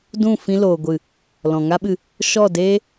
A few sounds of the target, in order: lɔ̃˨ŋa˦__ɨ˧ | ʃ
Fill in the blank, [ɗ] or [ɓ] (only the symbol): ɓ